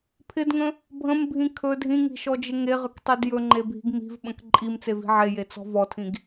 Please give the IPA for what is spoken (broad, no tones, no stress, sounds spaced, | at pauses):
pʰ ɪ d ŋ ə̃ | bʱ ə̃ m bʱ ĩ kʰ ɵ dʱ ĩ ŋ i̤ ʃ ɔ d͡ʒ ɪ ŋ e ʁ ə k tˤ e d j ɵ ŋ͡ǃ e bʱ i̤ ɡ m i̤ v ɓ ə̃ k ǃʼ i m t͡s e v i̤ ʕ e j e t͡s ɔ̤ v ɔ tʰ ĩ ɡ